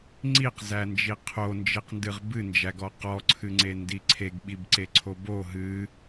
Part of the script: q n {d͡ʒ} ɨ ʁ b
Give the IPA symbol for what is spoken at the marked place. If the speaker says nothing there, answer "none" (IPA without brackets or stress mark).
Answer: d